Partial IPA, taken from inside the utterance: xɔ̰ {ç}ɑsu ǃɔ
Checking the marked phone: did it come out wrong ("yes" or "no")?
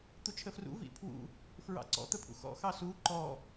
yes